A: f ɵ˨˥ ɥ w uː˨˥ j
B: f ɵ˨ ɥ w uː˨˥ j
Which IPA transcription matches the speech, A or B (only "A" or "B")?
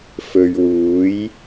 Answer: B